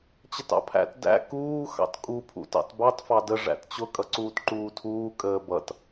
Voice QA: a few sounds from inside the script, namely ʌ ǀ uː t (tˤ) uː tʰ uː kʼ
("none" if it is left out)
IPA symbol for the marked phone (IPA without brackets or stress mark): ǃ